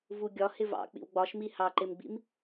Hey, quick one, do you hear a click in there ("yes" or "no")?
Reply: yes